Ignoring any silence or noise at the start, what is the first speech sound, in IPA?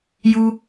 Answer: j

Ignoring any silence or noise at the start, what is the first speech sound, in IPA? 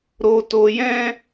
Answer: ɾ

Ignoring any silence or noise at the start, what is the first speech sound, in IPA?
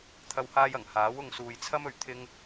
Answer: t̪ʰ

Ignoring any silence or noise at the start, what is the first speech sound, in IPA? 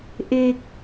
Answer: ʔ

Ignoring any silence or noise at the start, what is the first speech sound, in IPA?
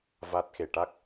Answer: v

